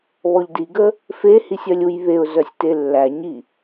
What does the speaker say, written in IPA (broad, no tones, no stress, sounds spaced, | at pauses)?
β ɔ ʎ d i ɡ ə | f e h i sʲ œ lʲ u j β e ʊ̯ z œ sʲ t e lː æ ɲ i